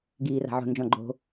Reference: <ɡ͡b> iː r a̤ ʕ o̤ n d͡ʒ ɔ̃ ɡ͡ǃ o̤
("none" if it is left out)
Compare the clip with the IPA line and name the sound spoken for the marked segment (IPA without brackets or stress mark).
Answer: ɡ